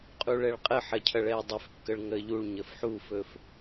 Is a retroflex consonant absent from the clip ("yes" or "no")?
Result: no